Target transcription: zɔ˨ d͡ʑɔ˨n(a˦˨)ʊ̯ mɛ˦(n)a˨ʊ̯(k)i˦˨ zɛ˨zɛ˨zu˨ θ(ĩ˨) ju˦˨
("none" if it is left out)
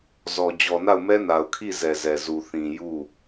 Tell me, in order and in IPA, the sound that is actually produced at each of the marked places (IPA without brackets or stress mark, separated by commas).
a˦˨, n, kʰ, ĩ˨